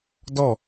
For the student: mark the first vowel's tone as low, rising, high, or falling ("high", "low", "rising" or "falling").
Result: falling